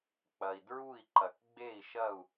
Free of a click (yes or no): no